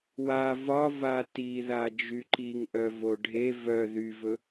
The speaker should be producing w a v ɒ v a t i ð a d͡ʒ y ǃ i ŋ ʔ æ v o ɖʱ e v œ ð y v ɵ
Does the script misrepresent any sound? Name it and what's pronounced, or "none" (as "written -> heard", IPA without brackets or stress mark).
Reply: æ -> œ